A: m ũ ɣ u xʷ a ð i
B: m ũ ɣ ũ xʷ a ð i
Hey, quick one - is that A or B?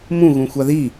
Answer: B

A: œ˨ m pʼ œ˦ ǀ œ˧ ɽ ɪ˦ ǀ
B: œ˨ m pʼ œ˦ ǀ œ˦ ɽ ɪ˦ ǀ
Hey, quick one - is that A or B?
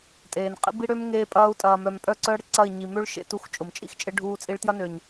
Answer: B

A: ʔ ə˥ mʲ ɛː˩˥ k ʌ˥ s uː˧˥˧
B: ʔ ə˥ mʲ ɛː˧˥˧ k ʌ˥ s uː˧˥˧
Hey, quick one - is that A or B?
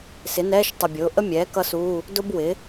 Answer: A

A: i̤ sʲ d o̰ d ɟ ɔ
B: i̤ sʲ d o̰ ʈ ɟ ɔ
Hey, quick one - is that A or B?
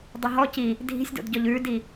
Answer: A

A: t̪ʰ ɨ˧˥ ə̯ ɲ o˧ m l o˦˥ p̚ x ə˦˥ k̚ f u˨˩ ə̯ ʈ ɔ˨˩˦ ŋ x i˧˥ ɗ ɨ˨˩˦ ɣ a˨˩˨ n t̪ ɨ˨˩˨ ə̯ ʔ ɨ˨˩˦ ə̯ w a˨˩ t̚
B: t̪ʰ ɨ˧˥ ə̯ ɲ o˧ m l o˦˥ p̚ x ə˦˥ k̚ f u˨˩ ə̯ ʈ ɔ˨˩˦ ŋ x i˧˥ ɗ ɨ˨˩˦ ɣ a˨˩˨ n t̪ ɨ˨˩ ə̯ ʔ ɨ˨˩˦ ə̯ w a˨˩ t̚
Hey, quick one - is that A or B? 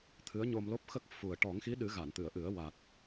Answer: A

